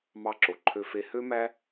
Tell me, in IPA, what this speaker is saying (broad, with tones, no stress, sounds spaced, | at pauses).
m ɑ˧ ǁ o˨ ǃʰ ø˧ f e˧ h ø˦ m æ˦